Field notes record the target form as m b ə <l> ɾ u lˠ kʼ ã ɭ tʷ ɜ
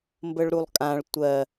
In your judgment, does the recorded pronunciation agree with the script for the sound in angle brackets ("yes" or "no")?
no